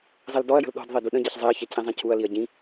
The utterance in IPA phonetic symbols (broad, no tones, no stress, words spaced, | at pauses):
zˤeldɔɐ̯jə̤l ɗɔ̤dðˤi duɗə̃ɟɛç zˤeɐ̯çɛ cʰĩzˤĩcʰuɐ̯liɐ̯ ɟĩ